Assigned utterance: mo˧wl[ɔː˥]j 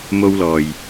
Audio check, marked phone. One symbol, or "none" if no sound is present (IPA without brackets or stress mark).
ɔː˨